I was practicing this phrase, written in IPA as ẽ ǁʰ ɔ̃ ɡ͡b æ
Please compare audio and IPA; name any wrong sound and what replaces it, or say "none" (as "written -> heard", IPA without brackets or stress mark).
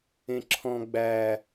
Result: none